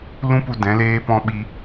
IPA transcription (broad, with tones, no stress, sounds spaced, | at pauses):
l ũ˦ p u˧ d ɛ̃˨˦ l eː˦ p ɔ̃˦ ɓ i˧